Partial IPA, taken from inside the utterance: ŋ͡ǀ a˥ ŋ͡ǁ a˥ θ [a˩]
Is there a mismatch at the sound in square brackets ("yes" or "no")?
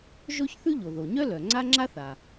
no